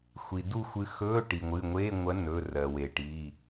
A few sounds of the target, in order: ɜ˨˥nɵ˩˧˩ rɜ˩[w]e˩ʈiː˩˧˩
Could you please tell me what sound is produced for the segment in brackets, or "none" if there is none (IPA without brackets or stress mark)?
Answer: w